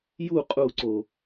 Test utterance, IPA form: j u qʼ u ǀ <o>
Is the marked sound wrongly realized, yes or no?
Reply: no